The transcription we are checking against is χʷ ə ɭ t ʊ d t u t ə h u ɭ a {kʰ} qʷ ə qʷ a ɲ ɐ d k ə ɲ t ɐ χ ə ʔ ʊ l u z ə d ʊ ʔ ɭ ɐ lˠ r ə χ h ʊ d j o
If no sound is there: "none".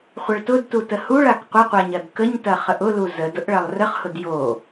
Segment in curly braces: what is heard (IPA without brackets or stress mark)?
k